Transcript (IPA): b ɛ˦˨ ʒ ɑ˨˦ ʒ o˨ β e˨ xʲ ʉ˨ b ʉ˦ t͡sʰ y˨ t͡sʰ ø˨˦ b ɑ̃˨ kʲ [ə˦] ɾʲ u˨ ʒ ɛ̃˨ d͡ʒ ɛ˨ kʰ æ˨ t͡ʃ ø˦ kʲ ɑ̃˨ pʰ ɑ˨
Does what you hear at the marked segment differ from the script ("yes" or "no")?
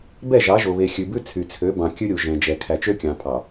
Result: yes